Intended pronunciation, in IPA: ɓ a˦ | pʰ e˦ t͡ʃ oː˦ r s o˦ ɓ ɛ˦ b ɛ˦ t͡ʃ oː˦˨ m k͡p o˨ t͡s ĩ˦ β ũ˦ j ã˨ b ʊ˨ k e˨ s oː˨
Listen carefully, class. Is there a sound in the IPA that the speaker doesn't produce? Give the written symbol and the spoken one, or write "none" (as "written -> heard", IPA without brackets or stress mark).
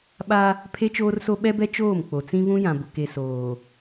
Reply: none